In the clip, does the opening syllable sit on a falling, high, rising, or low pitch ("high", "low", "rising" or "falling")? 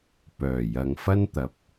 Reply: low